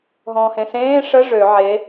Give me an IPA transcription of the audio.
ɦɔ̃ːhẽsẽː ʂə ʐø ʕe

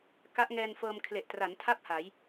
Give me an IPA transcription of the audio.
ka˦˥ʔŋɛː˧nfɤː˧m kʰle˨˩ʔtra˩˦ntʰa˥˩p̚ ha˩˦j

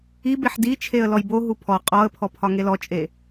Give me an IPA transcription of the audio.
ibeħ di t͡ʃʰeə̯lɔjboɦu pʰɔ qʼɔə̯pʰɔ pʰɒŋelɔt͡ʃʼe

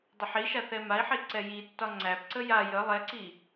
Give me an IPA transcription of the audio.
dˤʊħiʃa θɛmai̯ħi ǀɛjitːɒ ŋ͡ǀæpǀə ja jə lˠɛǀi

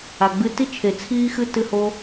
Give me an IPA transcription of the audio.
a˨ɡ͡bɨ˧ti˦ t͡ʃʰe˨t͡sʰiː˦xɨ˦ tɨ˦ho˦

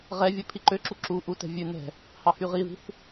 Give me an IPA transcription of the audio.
ʁɛvʲɵ pʰiǃøǁu ǁu ʔutɛ̤ vʲʉ nɛ̤ | hɑhyʁiði̤θ

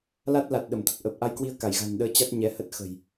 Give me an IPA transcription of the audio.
la˦˥t̚ la˨˩t̚ɗə˧˩mt̪ə˨˩t̚ ʔəː˨˩p̚ʔa˧jkwi˧ə̯ ka˧˩jɣa̤˨˩nɗəː˧ t͡ɕa˦˥t̚ ɲɛ˨˦hə˦˥t̚ xə̤˨˩j

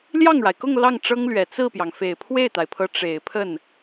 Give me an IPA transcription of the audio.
ljɑ˥˩ŋɻa˩ɪ̯kʊ˥˧ŋ lɑ˥˩ŋʈ͡ʂɤ˥ŋlɥɛ˨˩ t͡sɹ̩˥˩pjɑ˩ŋ fe˨˩ɪ̯pʰwe˥˩ɪ̯t̪a˩ɪ̯pʰɤ˧˥ ʈ͡ʂe˨˩ɪ̯pʰə˥˩n

